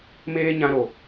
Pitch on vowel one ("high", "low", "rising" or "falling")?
high